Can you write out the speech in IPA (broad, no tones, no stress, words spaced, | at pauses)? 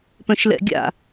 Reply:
pœ̃ʃlɛ̰ɡʲa̰